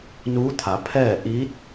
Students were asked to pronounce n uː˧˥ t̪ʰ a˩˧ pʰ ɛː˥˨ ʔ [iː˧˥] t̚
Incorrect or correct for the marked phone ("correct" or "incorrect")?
correct